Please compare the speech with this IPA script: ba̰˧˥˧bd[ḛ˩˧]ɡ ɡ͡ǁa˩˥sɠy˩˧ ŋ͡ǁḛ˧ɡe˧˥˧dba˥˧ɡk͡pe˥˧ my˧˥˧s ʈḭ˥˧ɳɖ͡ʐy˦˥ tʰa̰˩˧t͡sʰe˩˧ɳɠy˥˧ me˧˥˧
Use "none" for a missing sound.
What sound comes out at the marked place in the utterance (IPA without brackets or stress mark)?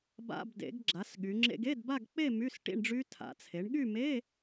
ḛ˩˧